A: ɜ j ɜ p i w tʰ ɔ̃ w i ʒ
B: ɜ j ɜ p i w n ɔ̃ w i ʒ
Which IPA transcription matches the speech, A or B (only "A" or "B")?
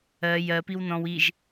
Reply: B